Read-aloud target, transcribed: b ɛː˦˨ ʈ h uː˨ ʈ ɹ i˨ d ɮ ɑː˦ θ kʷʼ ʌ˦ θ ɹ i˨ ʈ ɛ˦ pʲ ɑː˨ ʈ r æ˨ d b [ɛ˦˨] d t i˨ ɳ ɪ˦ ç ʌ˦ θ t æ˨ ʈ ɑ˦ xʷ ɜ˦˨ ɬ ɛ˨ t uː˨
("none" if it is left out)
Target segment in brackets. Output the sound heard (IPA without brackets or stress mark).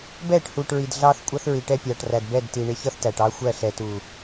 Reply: ɛ˦˨